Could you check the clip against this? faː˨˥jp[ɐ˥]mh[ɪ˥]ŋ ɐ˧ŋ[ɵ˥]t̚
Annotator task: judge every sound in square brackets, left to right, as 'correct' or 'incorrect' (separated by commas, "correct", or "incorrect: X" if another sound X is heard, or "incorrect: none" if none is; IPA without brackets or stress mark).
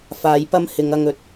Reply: correct, incorrect: ɪ˨˧, incorrect: ɵ˨˥